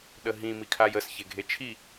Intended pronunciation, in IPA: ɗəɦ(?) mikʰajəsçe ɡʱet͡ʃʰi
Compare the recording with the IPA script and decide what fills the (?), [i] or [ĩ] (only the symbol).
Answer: ĩ